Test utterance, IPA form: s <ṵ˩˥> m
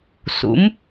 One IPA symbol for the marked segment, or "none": ṵ˩˥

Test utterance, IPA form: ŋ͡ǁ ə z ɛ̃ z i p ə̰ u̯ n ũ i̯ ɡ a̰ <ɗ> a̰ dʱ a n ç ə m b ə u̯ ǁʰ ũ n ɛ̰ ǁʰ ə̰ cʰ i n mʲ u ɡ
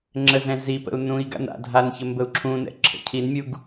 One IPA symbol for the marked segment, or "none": n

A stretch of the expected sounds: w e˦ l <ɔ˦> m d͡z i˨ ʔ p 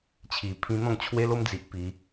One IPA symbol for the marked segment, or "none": o˦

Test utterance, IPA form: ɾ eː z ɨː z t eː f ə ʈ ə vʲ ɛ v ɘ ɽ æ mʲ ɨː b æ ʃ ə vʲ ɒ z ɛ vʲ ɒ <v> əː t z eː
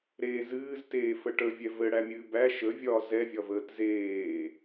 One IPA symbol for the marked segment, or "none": v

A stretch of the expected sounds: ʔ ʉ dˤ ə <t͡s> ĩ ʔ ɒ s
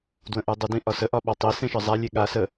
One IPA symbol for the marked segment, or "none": d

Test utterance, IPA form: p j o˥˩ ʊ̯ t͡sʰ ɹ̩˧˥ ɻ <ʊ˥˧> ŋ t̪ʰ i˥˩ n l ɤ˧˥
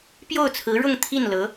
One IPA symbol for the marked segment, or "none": ʊ˥˧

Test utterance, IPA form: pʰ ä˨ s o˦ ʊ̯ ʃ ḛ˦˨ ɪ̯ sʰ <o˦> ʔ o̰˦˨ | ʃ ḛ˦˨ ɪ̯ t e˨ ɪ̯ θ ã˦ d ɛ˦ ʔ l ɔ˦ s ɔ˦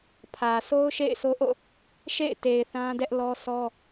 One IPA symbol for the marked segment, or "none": o˦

